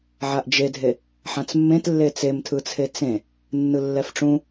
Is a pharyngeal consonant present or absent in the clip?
present